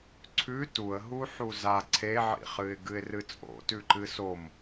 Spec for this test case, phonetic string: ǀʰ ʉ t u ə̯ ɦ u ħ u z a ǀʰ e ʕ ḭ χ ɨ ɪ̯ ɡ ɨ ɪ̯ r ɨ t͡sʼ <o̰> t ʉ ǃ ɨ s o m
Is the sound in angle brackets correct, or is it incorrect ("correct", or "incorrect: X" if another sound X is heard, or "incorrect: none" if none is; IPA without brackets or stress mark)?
correct